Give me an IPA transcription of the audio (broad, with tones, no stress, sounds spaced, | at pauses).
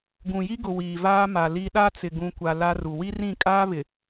ɡ ũ˨ j i˦ ɡ ʊ˨ w iː˨ v aː˦ m a˨ l i˦ ɗ a˦ t͡s ɪ˨ ɡ ũ˨ kʷ a˨ l a˦ r u˨ w i˦ r ĩ˦˨ kʼ aː˦ β ɪ˨